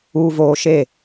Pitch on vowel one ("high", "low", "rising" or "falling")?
low